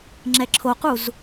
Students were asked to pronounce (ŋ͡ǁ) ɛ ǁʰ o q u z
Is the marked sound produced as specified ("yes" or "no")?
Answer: yes